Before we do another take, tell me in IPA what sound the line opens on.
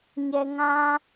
ɲ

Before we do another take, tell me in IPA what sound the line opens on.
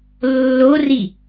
lː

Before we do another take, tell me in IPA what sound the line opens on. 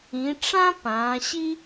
ĩ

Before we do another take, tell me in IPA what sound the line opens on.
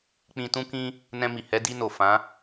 k͡p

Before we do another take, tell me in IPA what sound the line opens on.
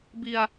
b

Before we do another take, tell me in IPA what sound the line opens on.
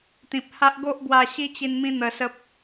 t̪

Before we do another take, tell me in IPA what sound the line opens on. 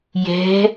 j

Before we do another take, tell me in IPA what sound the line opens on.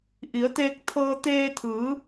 ʔ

